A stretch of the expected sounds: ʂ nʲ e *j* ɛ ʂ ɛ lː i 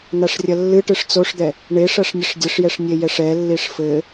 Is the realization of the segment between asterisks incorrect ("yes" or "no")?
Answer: no